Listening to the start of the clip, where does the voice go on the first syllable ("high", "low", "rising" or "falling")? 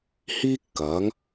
high